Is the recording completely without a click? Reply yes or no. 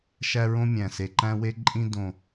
no